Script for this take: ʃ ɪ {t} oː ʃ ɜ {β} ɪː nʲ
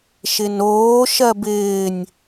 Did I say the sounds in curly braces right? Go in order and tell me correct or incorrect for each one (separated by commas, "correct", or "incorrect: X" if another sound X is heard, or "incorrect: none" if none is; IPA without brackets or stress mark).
incorrect: n, incorrect: b